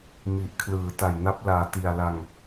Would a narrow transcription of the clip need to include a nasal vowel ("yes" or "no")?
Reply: no